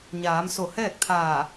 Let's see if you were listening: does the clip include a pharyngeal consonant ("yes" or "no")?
no